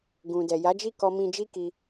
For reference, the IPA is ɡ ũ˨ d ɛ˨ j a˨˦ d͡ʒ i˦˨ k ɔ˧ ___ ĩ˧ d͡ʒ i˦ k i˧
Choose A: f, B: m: B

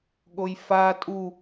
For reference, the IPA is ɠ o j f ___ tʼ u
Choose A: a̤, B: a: B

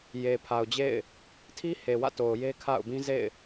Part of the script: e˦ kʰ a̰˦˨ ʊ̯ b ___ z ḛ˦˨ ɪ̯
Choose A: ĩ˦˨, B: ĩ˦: B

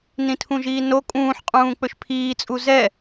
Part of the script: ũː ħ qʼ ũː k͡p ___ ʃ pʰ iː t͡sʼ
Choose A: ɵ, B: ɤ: A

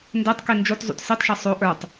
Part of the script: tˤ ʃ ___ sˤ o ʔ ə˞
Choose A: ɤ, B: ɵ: A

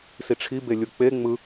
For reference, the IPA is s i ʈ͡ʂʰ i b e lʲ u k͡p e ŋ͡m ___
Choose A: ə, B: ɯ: B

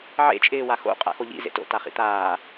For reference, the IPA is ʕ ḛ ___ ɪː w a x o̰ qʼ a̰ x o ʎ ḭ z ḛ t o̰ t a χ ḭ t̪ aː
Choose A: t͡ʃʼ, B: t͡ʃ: A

